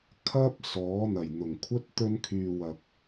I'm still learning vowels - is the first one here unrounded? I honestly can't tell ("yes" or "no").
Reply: yes